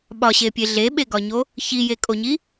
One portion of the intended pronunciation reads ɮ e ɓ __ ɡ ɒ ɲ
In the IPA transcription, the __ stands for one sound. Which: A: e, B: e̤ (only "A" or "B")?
A